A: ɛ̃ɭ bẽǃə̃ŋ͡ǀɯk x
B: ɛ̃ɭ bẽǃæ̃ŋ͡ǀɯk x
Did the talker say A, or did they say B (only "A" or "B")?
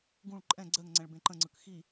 A